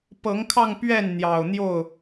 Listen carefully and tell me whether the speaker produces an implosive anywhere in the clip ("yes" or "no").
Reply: no